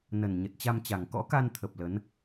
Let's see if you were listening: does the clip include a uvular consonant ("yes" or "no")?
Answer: no